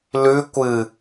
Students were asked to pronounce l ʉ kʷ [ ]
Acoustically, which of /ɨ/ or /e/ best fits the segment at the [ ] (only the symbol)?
ɨ